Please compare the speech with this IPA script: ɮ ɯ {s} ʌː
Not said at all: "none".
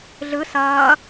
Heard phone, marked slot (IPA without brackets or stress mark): s